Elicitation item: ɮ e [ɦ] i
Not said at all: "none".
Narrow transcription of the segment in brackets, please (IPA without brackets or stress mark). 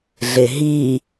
ɦ